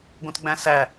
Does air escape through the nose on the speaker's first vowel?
yes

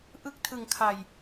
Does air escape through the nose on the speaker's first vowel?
no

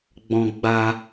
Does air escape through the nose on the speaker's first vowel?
yes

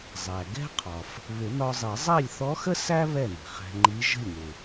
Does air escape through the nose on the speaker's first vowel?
no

